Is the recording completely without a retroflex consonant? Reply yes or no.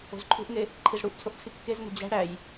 no